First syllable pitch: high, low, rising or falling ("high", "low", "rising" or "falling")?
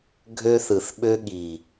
high